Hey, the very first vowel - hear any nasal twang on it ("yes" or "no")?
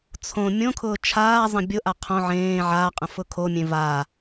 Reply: yes